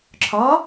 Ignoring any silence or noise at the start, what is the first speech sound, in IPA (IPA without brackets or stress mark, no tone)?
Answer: ǁʰ